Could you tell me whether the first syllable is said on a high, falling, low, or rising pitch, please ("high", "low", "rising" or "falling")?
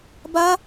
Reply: high